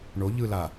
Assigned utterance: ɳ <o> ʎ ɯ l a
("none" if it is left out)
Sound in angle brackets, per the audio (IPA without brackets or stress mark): o